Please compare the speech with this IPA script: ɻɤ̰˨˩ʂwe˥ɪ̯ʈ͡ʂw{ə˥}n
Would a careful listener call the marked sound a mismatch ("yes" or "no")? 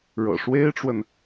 yes